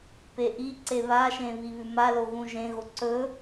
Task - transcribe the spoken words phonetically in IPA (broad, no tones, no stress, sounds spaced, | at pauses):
p e ʔ i ǀ e β a ʃ ẽ β i β ʉ m a l o ɣ ũ ʒ ẽ ɣ o ǀ ɵ